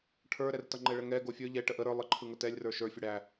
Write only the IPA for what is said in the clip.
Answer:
ʈʰ ə˞ ɾ ɛ r t ʌ ŋ͡ǃ ɛ ɭ ə ŋ ɛ ɡ o fʲ ə˞ ʎ ɛ ʈ ə ʔ ə ɾ ə˞ lˠ ə ǃʰ ɯ ŋ ə t ɛ lʲ r ə˞ ʃ ə˞ fʲ ə ɽ æ

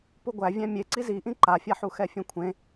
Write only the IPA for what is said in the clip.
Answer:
p u ɡʷ æ vʲ æ̃ mʲ e ǀ i z i ʔ ĩ ǃ a fʲ a ħ u x ɛ fʲ ẽ kʷʰ ẽ

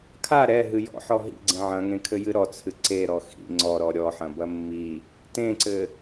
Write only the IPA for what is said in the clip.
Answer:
kʰ a ɾ ɛ ɦ ɨ j ɔ̰ ħ ɔ ɦ ḭ ɡ͡ǀ ẽ ʕ ɐ̃ ŋ ẽ kʰ ɘ j ɨ ɾ ɔ t͡sʰ ɨ ǀ e ɾ ɔ x ḭ ŋ͡ǀ ɔ ɾ ɔ ɾʲ ɔ ħ ɐ̃ b ɐ mː i | t ẽ ǀ ɘ

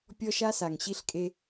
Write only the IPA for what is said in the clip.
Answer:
pʲ ɔ˦ ʃ a˦ s a˨ ŋ ɕ i˦ ɬ kʼ e˦

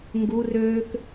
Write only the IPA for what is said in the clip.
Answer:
ŋ ɡ u r øː k

